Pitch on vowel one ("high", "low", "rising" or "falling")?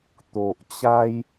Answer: low